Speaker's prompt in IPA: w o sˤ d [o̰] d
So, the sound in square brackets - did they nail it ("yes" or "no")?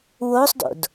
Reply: yes